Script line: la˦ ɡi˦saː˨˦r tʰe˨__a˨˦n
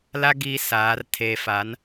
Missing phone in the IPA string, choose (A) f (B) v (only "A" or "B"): A